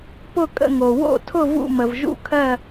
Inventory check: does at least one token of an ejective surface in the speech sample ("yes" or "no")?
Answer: yes